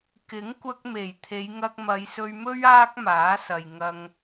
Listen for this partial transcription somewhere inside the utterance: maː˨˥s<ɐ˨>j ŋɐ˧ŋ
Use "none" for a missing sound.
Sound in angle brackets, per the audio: ɐ˨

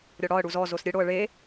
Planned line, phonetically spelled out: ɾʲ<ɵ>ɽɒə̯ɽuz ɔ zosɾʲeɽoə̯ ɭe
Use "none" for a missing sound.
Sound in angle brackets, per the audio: ɔ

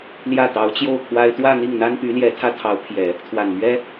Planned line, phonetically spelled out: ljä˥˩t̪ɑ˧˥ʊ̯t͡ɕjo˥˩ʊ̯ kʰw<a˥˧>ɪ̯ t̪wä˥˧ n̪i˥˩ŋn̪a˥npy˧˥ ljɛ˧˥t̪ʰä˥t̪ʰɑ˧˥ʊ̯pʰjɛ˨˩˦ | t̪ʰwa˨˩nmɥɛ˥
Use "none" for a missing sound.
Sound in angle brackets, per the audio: a˥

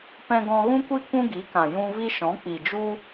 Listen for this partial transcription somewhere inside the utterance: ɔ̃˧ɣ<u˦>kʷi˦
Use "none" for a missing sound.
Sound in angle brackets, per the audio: ũ˦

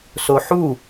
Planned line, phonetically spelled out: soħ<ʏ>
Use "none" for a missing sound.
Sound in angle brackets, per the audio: u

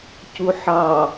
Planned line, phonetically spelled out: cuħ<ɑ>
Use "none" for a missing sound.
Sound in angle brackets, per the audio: ɑ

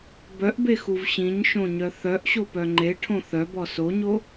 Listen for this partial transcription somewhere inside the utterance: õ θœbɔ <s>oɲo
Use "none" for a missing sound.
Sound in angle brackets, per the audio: s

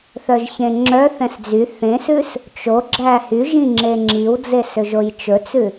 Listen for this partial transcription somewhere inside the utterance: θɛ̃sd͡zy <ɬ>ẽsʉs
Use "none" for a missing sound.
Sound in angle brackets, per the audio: θ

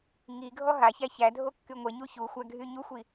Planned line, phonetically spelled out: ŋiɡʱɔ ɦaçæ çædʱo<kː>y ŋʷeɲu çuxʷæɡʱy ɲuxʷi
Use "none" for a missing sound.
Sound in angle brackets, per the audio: kː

